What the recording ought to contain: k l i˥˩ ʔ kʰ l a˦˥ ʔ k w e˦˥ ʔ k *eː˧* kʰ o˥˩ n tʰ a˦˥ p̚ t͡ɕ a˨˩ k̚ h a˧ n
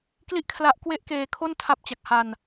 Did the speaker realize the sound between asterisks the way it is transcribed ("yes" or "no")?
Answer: yes